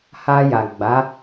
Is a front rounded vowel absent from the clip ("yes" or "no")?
yes